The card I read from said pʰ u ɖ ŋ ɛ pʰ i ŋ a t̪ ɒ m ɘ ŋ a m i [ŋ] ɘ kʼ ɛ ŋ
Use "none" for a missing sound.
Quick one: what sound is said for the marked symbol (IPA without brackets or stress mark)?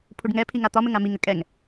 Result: ŋ